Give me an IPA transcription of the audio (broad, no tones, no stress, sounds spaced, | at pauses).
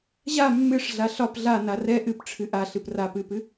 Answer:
ʑ a mː ɨ ʂ ɮ a ɬ ɒ p ɮ a n a r ɛ ʔ ɨ p ʈ͡ʂʰ ɨ ʔ a ɬ ɨ p r a p ɨ p ɨ